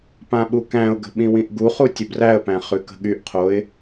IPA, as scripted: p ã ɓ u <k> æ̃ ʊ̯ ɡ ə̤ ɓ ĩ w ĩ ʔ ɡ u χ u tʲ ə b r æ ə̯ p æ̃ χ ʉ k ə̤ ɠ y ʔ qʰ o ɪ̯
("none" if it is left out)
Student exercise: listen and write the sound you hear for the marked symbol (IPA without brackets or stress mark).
k